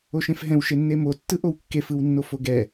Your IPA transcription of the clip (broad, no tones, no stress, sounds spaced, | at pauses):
o ʃ ẽ f ɦ ɛ̃ w ʃ e nː e m o tː ɯ ʔ o w kː e f ɯ w nː o f o ɡ ɛ